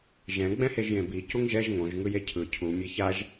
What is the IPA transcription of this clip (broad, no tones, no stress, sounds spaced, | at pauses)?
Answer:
ʒ ɛ̃ ɡ͡b ɛ̃ h e ʒ j ẽ b i c u ŋ ʒ ɛ ʒ ŋ õ ʒ ŋ ɯ j e cʰ ɯ cʰ u mʲ e ç a ʒ